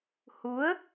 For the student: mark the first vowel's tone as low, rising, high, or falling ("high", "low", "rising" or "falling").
rising